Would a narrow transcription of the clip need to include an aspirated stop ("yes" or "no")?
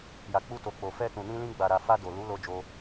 no